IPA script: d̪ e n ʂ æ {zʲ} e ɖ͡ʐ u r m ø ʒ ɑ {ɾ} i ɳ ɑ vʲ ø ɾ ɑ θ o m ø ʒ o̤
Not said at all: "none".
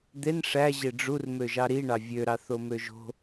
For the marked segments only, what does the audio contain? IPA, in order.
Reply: ʑ, ɾ

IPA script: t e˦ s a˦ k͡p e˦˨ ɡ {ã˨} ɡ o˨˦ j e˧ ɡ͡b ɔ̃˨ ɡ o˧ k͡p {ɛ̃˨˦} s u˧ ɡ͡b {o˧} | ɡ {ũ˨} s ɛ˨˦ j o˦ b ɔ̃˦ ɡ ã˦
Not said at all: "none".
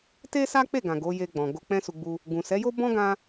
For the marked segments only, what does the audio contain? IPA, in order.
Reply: ã˨, ɛ̃˦, u˧, ũ˨

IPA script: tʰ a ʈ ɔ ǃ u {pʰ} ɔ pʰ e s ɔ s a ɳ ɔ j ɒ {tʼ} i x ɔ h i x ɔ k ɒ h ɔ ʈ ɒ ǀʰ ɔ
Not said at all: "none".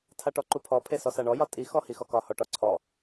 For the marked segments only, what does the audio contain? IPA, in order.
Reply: pʰ, tʼ

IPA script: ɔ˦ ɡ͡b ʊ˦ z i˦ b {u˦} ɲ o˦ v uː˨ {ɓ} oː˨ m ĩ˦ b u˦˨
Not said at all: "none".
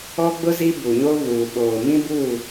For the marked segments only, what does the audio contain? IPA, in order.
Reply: u˨, ɓ

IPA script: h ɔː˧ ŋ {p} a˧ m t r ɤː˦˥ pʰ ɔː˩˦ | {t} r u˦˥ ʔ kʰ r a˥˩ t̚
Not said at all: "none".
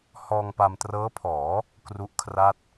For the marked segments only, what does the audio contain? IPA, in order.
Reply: p, k

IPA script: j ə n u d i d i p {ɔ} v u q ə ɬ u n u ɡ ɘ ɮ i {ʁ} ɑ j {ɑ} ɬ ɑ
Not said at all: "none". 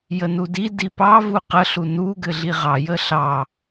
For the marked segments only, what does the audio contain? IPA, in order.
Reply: ɑ, ʁ, ə

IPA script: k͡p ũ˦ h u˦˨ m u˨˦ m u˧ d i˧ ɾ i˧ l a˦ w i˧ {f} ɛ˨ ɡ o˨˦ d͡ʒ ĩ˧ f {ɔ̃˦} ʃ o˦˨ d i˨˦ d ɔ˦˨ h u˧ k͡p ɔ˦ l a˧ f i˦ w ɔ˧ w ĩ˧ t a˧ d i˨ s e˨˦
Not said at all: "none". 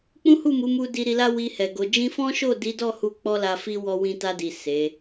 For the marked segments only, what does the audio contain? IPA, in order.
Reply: h, ɔ̃˦

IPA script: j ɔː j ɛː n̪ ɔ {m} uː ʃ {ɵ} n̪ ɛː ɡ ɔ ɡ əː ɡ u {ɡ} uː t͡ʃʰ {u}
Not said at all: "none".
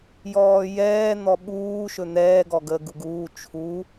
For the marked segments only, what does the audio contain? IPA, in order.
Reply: ɓ, ɵ, ɡ, u

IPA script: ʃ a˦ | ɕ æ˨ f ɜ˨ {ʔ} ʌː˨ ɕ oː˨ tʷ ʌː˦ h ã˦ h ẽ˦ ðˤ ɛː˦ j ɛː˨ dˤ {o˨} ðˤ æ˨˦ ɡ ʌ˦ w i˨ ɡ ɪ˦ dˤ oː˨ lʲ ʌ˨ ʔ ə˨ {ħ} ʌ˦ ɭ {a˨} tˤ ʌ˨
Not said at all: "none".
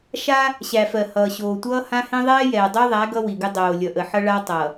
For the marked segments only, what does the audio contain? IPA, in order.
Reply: h, o˦, ħ, a˦

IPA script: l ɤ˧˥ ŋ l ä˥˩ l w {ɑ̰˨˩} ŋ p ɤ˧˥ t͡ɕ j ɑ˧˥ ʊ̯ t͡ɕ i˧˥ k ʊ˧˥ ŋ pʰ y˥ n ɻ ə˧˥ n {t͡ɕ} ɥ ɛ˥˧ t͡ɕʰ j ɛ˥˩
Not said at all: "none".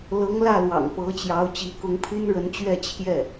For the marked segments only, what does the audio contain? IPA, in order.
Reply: ɑ̰˨˩, t͡ɕ

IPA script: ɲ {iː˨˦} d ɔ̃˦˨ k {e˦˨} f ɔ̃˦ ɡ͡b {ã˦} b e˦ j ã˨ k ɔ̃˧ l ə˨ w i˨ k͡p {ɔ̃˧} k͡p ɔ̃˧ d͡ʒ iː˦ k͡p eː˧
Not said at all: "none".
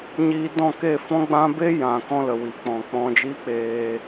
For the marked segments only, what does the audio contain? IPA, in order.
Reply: iː˧, e˦˨, ã˦, ɔ̃˨

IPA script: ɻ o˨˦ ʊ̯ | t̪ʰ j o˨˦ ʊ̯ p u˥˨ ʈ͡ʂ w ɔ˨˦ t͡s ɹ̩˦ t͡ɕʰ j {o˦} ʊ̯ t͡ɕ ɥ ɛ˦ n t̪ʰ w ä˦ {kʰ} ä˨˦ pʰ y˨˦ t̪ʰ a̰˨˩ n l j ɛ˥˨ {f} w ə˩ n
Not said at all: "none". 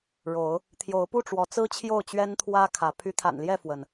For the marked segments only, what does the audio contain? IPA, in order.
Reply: o˥˨, kʰ, f

